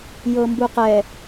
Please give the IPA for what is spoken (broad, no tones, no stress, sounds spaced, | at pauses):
j ɤ m b u q ɛ